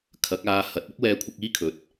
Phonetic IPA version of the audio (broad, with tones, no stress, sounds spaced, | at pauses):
kʰ ɐ˨˥ k̚ aː˧ h ɐ˨˥ t̚ ʊ˥ k̚ w ɛː˧ kʷʰ ɪ˧ k̚ iː˥ kʰ ɵ˨˥ t̚